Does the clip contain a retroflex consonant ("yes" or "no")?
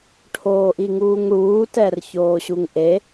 yes